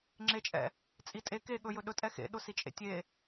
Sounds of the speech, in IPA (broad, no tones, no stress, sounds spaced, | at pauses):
ŋ͡ǁ e t͡ʃʼ ɛ̰ | t͡sʼ i tʼ e k e ɠ ɵ j ɵ ɗ ɵ tʼ ɛ x ḛ ɗ ʊ s i t͡ʃʼ ḛ tʲ e